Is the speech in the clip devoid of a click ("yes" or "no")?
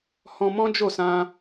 yes